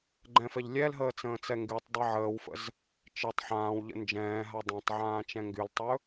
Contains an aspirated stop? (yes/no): no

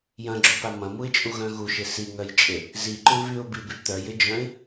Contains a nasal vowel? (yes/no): yes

